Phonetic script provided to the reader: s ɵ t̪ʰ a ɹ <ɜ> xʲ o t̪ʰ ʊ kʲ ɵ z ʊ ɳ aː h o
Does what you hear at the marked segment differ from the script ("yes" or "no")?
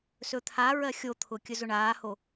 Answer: no